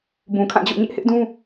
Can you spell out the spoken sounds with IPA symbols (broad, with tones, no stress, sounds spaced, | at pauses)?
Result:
b ũ˨ kʰ ã˦˨ d͡ʑ o̰˦˨ ɲ ɪ˦ ʔ h ɪ˦ ʔ d ũ˦